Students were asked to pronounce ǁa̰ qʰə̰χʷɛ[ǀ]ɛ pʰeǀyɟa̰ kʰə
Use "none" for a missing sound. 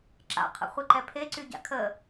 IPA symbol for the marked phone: ǃ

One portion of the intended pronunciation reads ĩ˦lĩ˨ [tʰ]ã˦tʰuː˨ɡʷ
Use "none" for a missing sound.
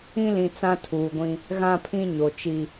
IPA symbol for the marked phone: t͡s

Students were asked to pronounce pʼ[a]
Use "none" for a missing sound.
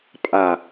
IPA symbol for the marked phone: a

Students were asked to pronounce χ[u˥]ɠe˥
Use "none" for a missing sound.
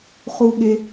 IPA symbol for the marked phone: u˥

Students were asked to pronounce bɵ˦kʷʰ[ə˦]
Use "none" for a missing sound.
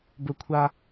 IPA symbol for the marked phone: a˦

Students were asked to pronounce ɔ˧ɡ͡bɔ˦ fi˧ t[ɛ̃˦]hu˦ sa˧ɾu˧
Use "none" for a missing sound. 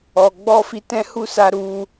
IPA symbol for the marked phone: ɛ̃˦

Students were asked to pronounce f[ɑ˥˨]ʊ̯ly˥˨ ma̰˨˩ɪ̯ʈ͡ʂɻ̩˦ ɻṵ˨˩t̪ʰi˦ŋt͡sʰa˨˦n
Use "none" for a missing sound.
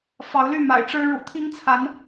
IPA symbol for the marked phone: ɑ˨˦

